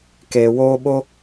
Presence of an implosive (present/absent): present